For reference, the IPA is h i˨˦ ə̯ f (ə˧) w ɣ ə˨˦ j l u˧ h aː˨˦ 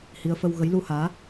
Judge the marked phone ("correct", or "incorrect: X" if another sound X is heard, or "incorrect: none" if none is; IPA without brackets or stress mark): correct